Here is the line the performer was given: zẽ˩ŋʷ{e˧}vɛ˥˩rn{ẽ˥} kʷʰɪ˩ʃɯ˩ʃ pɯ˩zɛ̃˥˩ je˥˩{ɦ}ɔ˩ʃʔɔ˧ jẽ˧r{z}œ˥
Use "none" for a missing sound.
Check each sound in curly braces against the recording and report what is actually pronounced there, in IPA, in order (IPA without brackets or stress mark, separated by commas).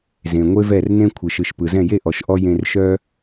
e˥, ẽ˥, ʔ, ʃ